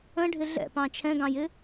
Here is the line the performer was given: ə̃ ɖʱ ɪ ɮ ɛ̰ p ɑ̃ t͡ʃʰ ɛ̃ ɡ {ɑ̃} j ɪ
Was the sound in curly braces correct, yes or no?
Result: yes